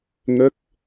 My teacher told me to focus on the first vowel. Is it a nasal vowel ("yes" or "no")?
no